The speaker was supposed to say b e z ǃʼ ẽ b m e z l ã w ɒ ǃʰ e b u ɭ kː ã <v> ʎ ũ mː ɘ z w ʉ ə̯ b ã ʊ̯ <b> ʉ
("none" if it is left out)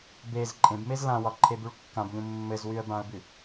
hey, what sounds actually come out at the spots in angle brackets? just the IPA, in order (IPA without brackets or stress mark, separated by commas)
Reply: b, b